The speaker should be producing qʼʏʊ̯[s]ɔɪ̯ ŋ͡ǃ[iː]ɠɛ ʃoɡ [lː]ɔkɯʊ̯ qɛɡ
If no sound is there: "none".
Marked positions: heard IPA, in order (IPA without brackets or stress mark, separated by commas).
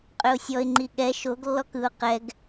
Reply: sʲ, i, lː